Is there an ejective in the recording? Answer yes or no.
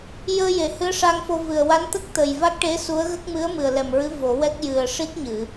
no